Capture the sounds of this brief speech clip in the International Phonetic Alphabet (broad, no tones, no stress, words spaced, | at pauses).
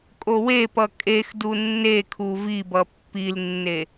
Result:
kʼowepʌ kʼex dunːekʰu vibʌ pːilnːe